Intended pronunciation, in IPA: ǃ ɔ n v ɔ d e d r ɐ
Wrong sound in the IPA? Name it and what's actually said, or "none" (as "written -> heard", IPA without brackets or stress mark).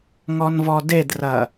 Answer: ǃ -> ŋ